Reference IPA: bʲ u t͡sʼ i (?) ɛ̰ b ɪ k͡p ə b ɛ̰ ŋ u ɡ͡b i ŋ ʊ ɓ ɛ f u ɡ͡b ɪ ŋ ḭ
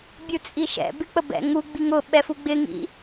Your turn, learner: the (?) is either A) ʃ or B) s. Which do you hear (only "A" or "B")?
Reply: A